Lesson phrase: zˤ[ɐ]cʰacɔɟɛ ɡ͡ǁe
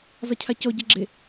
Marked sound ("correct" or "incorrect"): correct